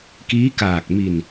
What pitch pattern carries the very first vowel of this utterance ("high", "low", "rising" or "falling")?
rising